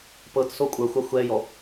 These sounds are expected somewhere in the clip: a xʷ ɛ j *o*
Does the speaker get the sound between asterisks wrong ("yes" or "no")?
yes